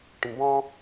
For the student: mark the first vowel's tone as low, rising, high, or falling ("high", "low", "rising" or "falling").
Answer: low